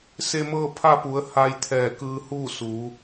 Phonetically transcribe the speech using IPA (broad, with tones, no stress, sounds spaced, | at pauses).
s e˧ m ɤː˥˨ pʰ a˥˨ p u˩˧ ə̯ h a˧ j t̪ʰ ɛː˧˩ k ɯː˧ h uː˥˨ s u˩˧